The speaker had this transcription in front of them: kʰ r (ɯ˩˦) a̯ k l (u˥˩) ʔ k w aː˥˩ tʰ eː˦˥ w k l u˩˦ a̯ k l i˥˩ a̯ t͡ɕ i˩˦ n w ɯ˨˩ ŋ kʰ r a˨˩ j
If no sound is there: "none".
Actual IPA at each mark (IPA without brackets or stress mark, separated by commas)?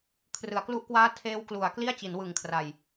ɯ˩˦, u˥˩